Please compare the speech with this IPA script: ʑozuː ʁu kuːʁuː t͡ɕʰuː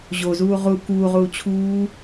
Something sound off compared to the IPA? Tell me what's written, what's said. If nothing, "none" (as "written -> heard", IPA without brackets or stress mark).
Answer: none